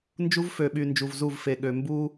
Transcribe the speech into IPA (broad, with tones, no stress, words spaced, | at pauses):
nd͡ʒu˦vfø˨ɓy˨ nd͡ʒu˨vzu˦˨vfe˨ɠø˨ mbu˦